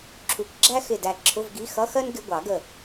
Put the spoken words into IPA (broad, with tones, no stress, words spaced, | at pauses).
ǁʰu˨˩˦kʷɡ͡ǁæ˥xɪ˧˩ dæ˧˩ǁʰʊ˧˥˧vɡi˧˥˧ xʌ˧˥˧xɜ˥n ɡɪ˧˥˧ɡʷɑ˨˩˦ɡə˧˩